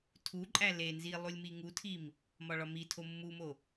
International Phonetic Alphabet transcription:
tʰ u ǃʼ æ l e n z i lˠ u lʲ m i ŋ u tʰ i m | m ɒ ɭ ɒ m i tʰ o mː u m o

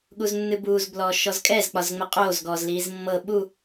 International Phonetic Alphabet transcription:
ɠ u z nː ɨ b uː z b l ɔː ʃ ɔ z kʼ ɛ z k͡p ɒ z ŋ͡m ə qʼ oː z ɡ ɔː z l iː z mː ɤ ɓ u

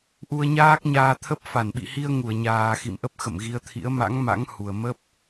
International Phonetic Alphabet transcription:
ʔ u˧ ə̯ ɲ aː˦˥ k̚ ɲ aː˧ t̪ʰ ə˦˥ p̚ f a˧˩ n ɓ ḭ˧˨ h i˧ ə̯ ŋ u˧˩ ə̯ ɲ aː˨˩ x ḭ˧˨ m ʔ ə˦˥ p̚ x ə̰˧˨ m ɣ i˨˦ ə̯ t̪ʰ ḭ˧˥ ə̯ m a̰˧˥ ŋ m a̰˧˥ ŋ h u˨˩ ə̯ m ə˦˥ p̚

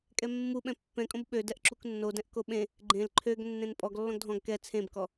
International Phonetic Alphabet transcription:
kʼ ɛ mː u ɓ ɛ̃ pː ɛ̃ kʼ õ b ɓ ø d ɛ ʔ ǁ u k nː o d ɛ̃ ʔ k o ɓ ẽ | ɡ͡ǃ ẽ l ǃʰ ø ɡ nː ẽ n pʼ ɔ ɡ lː ɔ̃ ɡ dʱ ɔ̃ ɡ k ɛ t͡sʰ ẽ b k ɔ

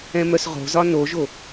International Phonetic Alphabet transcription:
ɛ̃ m œ s ʁ o̤ z ɒ n o ʒ o

